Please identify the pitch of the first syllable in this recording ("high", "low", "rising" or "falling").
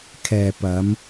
low